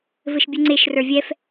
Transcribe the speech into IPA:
vɘʃbʲʉŋ͡ǀeʃrə˞ vʲɛf

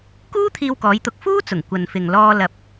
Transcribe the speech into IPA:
kuː˥t̪ʰiː˧wkɔː˨˧jt̪ʊ˨˥k̚ fuː˥t͡sʊ˨˩ŋ kʷɐ˨nfɪ˨ŋ lɔː˧lɐ˨˥p̚

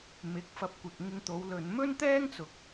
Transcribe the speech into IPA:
mɪ˨˥k̚fɐ˧p̚kʷɪ˨k̚ŋɪ˧ŋ t̪o˨˥wlɵ˨˧n mɵ˥nt̪ɛː˥ŋt͡sʊ˨k̚

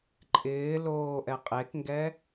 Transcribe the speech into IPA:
ǃʼɪːloː ʔɛqʼekŋɡɛ

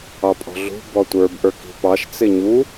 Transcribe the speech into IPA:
ɑpʼɔ̤ɮṳ bɔtʷə˞b ʔə˞ki̤pɑʃ t͡sɪɲu

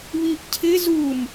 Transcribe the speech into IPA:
βiʔcʰɪ zum

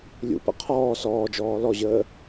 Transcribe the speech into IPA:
lʲṵpə̰ qʰɔː sɔːd͡ʒɔː lɔʑəː

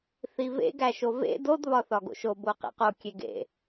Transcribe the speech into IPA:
θivḛ ɡæʃovḛ dod βɒθɒɡo̰ʃo boqḛqo kʲeɡḛ

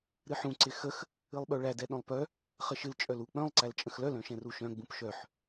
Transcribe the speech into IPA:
ɾɨħũ ǀɪxəx | ɨlˠɓœɭæ dɛɗœ̃lˠpœ | χəʃɨl t͡ʃʼœlu k͡pœ̃lˠ ǀælt͡ʃʼə̃xlœl œ̃ʃɛ̃ruʃœ̃ ɡ͡bũpʃœħ

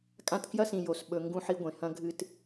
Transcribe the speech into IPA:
kʼã˦tkjɐ˥sĩ˨ jo˩s ɓɵ˨ ŋɡũ˦ħi˦ɡʷẽ˩ hɐ̃˦ɡʱɨ˦t

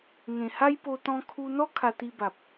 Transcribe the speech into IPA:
ŋẽ˨˩ha˦jpo˧ t̪ɔ̃˧kʰu˧n̪ɔ˦ kʰa˧t̪i˧ba˨p̚

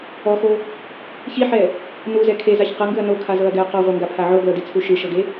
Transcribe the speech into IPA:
ɔxo | çiħɛ | nuzɛ kʰezaç qɤŋɡɯɐ̯ nokʰazɤɐ̯ɡɛɐ̯ qɔʁʷɤŋɡapʰa ʕoɡlɤdit͡sʰu ʃɯʃɤɡe

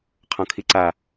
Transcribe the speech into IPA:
qʰɔ̃kʰiǀa

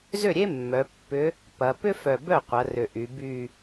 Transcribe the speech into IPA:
zʏ˥˩ɾʲe˥mːœ˩˧ pːʏ˧˥ | pɐ˩˧ pʏ˥fœ˨˩bœ˥˩ qʷɐ˩˧ rʏ˨˩ʔy˩˧ by˥˧

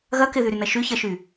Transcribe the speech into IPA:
ɣɐ kɪðyɾynɐ ʃyçɐʃy

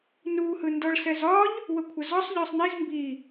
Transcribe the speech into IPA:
nu hɯndɔɭsɛzɒʎ | wəkʷʰəzɒsˤ ʎɒsˤniz mbi

